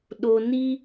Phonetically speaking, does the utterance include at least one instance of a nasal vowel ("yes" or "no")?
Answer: no